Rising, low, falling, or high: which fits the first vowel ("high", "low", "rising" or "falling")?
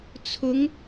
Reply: rising